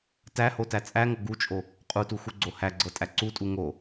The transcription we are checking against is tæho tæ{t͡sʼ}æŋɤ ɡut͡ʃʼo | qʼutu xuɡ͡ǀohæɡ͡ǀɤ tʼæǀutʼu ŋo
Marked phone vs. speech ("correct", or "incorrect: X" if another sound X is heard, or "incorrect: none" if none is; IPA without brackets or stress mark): correct